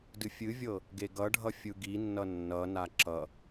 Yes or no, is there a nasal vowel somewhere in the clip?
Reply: no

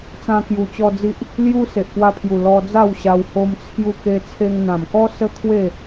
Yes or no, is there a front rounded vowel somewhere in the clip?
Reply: no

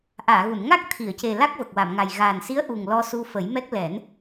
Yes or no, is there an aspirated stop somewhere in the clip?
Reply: yes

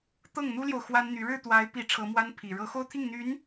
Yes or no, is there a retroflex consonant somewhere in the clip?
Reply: yes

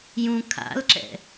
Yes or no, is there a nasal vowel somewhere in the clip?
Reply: yes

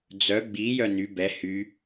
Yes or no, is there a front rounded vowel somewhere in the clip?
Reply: yes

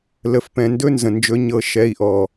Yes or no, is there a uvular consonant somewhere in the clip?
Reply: no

